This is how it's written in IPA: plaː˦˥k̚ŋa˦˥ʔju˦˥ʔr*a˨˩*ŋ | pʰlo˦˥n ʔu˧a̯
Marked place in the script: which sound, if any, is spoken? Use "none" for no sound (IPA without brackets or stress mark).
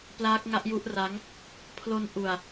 a˦˥